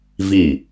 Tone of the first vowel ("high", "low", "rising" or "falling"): falling